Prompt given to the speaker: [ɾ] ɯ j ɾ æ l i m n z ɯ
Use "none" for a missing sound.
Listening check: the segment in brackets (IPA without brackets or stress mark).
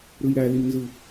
ɾ